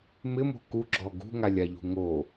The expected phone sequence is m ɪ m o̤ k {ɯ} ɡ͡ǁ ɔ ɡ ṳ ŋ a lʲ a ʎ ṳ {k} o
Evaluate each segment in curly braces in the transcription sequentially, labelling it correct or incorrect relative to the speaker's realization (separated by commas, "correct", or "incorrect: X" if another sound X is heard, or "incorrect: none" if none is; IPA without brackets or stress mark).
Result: incorrect: u, incorrect: ŋ